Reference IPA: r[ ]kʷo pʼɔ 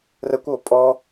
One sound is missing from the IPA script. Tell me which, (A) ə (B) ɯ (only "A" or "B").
A